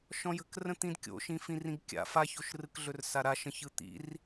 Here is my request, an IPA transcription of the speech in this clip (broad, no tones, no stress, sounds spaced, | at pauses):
ʃ ɔ̃ j ə̤ k r ə̃ t̪ ĩ d kʲ o̰ ʃ ĩ f ĩ r ĩ ɡ kʲ a̰ f a ç o ʃ r ɯ k ɮ ɵ r s a ɾ a ʃ ə̃ ç ɯ t̪ ḭ r